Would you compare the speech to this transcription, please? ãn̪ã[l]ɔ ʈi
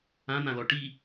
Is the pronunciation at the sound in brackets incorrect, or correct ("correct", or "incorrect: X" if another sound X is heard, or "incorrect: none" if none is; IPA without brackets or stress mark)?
correct